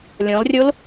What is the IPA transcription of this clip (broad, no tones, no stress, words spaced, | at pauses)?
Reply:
lʲɔ̃lrʲol